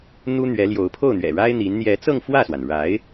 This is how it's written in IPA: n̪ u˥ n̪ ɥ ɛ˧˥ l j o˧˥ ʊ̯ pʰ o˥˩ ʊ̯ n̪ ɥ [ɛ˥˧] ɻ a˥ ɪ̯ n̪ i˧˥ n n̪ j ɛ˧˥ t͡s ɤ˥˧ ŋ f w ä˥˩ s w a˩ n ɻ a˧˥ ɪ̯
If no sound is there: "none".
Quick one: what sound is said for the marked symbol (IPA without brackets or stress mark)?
ɛ̰˨˩